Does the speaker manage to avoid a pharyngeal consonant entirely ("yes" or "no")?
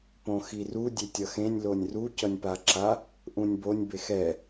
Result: yes